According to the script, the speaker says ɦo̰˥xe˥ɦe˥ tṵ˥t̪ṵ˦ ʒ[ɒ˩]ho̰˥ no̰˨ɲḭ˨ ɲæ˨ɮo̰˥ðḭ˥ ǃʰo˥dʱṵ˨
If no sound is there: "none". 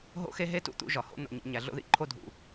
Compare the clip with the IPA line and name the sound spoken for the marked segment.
ɒ˩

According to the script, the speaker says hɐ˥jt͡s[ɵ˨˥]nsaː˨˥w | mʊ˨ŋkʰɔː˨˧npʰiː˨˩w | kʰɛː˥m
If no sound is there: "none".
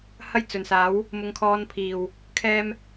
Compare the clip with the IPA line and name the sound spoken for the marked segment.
ɵ˨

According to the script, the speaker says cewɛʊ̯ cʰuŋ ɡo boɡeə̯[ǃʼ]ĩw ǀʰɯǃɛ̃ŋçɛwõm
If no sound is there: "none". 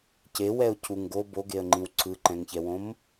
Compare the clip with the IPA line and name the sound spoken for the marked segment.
ŋ͡ǃ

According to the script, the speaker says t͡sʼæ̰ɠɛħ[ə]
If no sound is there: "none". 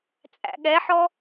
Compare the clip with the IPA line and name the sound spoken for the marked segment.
ɔ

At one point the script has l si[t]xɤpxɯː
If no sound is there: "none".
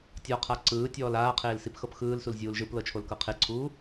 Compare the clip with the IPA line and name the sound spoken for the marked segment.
p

